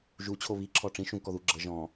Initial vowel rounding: rounded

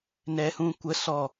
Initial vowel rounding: unrounded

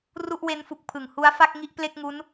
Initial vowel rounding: rounded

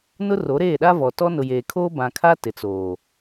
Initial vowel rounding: rounded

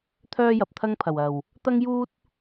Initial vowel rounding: rounded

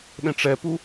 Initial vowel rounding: unrounded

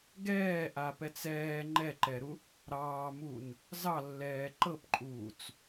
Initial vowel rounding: unrounded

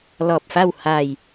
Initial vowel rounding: rounded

